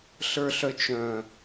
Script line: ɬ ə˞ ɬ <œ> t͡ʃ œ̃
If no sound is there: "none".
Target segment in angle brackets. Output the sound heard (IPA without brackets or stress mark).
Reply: œ